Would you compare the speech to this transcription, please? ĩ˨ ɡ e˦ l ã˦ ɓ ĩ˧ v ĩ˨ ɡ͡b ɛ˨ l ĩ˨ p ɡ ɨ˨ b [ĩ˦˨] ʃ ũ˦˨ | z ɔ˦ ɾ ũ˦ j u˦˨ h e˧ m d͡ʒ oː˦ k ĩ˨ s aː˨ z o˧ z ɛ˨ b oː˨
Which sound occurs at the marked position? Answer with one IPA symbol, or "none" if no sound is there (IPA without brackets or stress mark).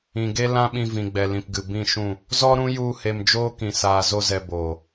ĩ˦˨